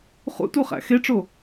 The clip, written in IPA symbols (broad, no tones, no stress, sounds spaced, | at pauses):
χ ṵ t u χ æ̰ x e ʈ͡ʂ o